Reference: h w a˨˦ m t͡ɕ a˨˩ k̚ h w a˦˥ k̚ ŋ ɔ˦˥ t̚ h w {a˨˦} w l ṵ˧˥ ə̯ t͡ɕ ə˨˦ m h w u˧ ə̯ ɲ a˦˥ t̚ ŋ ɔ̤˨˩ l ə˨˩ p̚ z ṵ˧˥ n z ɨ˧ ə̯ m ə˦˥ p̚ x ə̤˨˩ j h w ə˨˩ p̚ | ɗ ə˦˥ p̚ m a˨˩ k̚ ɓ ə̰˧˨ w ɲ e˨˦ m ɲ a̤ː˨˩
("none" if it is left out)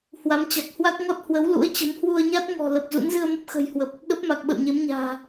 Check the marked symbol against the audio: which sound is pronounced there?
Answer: ə˨˦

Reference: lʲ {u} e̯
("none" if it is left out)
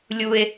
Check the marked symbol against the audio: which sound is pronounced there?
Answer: u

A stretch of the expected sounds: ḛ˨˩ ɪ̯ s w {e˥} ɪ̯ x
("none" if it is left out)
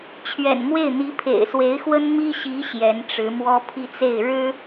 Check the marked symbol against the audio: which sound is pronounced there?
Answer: e˧˥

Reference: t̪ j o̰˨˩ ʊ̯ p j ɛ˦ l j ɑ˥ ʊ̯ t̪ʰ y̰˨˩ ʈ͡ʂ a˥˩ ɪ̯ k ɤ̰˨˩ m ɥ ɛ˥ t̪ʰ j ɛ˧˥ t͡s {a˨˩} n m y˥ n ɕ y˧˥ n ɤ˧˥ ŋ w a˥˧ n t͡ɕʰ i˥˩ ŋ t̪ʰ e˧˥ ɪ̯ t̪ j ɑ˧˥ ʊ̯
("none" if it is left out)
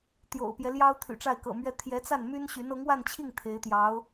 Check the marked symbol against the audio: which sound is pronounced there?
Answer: a˥˩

